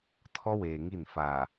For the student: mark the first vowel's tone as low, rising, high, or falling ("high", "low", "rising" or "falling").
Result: high